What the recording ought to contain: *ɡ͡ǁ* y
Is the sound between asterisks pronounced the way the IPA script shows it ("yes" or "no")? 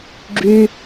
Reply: yes